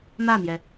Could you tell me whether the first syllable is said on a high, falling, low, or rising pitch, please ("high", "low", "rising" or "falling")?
falling